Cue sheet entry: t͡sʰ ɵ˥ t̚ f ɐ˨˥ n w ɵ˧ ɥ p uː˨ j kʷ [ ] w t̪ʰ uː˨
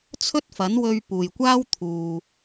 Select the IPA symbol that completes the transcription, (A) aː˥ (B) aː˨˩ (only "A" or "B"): A